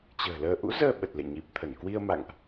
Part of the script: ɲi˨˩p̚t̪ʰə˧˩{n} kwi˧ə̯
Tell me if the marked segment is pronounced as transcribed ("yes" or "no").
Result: yes